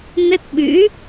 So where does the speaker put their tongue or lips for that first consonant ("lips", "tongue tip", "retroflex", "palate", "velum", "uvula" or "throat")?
tongue tip